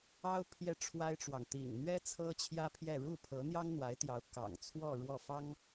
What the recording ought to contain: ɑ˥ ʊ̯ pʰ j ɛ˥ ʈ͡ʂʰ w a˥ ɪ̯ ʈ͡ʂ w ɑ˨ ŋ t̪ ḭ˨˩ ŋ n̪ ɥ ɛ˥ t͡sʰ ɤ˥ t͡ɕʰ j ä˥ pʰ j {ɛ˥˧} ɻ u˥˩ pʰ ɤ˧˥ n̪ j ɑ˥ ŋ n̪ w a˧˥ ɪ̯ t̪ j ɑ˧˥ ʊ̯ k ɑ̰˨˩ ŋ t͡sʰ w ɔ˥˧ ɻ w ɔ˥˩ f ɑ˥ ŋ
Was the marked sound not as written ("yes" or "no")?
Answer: no